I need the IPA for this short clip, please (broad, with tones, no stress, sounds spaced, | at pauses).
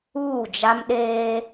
uː˦˨ d͡ʒ a˦ m ɗ eː˦